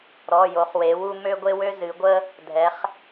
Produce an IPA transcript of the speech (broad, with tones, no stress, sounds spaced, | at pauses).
ɾ ɔ˩˧˩ j o˩˧ χ w e˩˧ w u˦ m ø˦ ɡʷ e˦ w ø˦ z ɨ˩˧ ɡʷ ə˦ | dʱ ɛ˩˧ χ